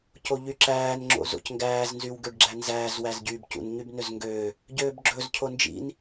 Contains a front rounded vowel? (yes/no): yes